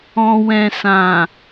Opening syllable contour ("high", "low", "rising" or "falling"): low